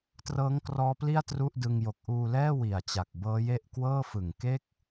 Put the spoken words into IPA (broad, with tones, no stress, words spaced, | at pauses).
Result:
trɤː˦˥ŋkrɔː˦˥pli˥˩a̯ tru˥˩ʔdɯ˧ŋjo˨˩k̚ ʔuː˧ lɛː˥˩ wi˨˩a̯t͡ɕa˨˩k̚bɤː˦˥je˥˩ʔ kwɤː˥˩fɯ˨˩ŋ ke˥˩k̚